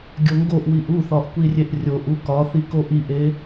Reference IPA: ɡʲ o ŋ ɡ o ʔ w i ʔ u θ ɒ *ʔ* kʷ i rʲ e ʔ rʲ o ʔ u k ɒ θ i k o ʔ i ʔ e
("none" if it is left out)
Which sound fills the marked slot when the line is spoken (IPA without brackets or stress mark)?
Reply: ʔ